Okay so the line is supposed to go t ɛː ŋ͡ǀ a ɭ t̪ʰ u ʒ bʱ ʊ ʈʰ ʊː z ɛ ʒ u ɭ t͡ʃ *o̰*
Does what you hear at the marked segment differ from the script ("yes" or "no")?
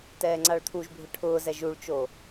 yes